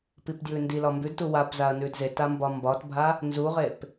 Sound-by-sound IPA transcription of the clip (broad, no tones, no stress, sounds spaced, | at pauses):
p i p d j ʉ n d i l ɒ m b ʉ d t u w a p z a ɐ̯ n ʉ d z e t a m b ɒ m b ɒ t bʱ a | n z u ʁ e p